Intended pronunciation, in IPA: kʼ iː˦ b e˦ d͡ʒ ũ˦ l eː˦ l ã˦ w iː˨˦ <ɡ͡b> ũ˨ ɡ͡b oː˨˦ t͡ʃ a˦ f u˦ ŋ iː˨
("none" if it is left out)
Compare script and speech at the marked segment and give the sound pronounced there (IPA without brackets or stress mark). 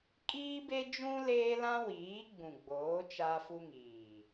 ɡ͡b